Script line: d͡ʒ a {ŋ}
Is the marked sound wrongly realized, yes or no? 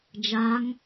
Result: no